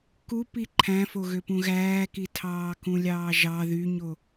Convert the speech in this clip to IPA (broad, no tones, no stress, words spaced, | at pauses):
kupi ǃʰæ̃foɣø pũɣæːki tʰɑːkũlʲɑːʒɑ ðyɲo